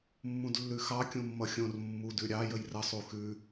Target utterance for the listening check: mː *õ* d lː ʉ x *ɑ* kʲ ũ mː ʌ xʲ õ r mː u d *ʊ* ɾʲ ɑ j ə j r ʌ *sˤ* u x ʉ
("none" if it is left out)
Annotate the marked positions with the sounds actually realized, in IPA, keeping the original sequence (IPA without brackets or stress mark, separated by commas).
ũ, ɑ, ʉ, sˤ